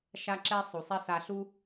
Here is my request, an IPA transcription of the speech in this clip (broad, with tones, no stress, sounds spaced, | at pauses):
ʃ a˥ ǁ ɛ˥ sˤ u˩ sˤ ɛ˥ s a˧ ɬ u˥